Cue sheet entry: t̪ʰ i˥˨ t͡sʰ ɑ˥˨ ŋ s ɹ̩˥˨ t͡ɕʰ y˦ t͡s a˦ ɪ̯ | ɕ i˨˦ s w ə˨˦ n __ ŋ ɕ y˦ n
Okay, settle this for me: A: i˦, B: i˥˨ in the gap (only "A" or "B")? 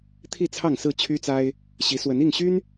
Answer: B